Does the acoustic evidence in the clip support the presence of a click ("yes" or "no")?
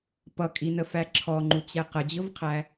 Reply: yes